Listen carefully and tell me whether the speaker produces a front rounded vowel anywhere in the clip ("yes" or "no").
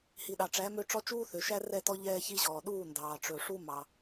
yes